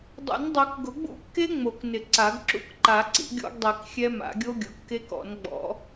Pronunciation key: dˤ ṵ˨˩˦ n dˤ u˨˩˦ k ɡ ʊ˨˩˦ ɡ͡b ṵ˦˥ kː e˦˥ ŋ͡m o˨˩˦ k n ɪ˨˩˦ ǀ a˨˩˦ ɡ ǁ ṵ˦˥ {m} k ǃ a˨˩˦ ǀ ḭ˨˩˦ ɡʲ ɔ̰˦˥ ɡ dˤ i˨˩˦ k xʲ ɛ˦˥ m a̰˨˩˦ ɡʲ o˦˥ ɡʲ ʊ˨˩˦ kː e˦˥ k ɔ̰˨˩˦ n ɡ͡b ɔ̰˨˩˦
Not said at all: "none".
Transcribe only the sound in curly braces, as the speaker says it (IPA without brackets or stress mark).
none